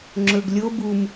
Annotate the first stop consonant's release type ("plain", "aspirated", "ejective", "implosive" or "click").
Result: click